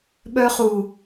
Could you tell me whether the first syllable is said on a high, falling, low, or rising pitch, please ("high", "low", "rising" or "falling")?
high